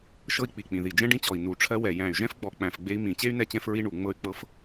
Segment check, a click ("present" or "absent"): absent